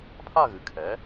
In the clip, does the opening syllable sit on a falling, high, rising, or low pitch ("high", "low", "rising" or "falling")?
falling